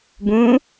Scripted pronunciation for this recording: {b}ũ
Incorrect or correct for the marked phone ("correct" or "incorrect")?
correct